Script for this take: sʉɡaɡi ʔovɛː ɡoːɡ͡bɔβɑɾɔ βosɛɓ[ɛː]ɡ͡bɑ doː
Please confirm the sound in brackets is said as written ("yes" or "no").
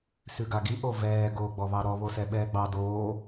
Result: yes